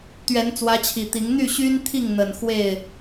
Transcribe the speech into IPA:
t̪ ɥ ɛ˨˦ n t͡s w ä˨˦ t͡ɕʰ i˨˩ t̪ i˨˦ ŋ n̪ y˥˨ ɕ y˦ n t̪ʰ i˥˨ ŋ n̪ ə˨˩ n x w e˥˨ ɪ̯

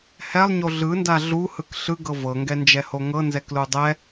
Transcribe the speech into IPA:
h ɛ lˠ ɲ o ɮ ɯ n d a ɮ u h ɯ k ɬ ɯ ɡ ɤ v ɤ ŋ ɡ ɛ n d͡ʒ ɛ h o ŋ ɤ n z ɛ k l u dˤ ɛ

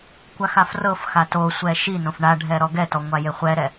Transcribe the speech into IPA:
kʷ a x a f r ɤ f x a t o sʷ ɛ ʃ i n õ f ɳ a ɖʱ ɛ ɾ ɔ ɡ ɛ t ɔ ŋʷ a j e χʷ ɛ ɾ ɛ

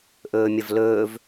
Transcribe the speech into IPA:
ʔ ɵː mʲ ɐ v l ɵː v

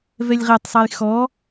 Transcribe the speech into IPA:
v ɛ lʲ ʁ ɛ tˤ sˤ a j x ɔ

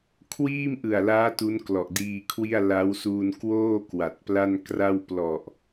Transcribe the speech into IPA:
kʰ w iː˥˩ m ʔ ɯ˨˩ a̯ l aː˦˥ t u˦˥ n k l ɔ˨˩ ʔ d iː˧ kʰ w i˥˩ a̯ l a˦˥ w s uː˧ n k w oː˥˩ k w a˨˩ t̚ p l a˥˩ n k r a˥˩ w p l ɔ˨˩ ʔ

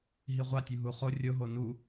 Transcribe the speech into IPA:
ɦ i ʁʷ a tʲ u ɦ u χ o rʲ o ɦ o n u

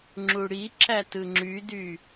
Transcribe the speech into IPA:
ŋ͡ǁ u ɽ i ǁ æ t ɯ ŋ͡ǁ y d y

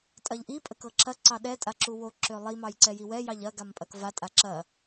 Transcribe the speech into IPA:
tʼ ɐ ʎ ʔ i pʼ ə k ɤ ǁ ɐ ǀ ɑ ɗ ɛ tʼ a ǁ u w o ǁ ø lˠ i m ɑ j ǀ ɛ j i w ɛ j ɑ ʎ ɐ ɡ a m pʼ ɐ k v a tʼ a ǁ ɐ

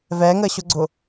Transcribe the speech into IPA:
v ɛ ŋ ə ɕ ʊ ɡ͡ǀ ʊ

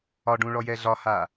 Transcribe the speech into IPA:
ɒ ɖ ũ ɭ ɔ j ɛ ɮ ɒ h a

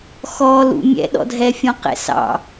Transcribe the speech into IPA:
x ɔ l ṵ mʲ ɛ̰ ɗ ɔ̰ dʱ ɛ fʲ ɔ̃ q ɛ̰ s ɑ̰

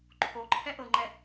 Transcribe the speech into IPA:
ǃʰ o ǃʰ ɛ ʔ ɤ ŋ͡ǃ ɛ

